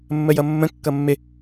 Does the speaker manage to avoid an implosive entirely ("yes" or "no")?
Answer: yes